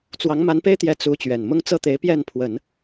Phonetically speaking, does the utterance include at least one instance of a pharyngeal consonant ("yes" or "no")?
no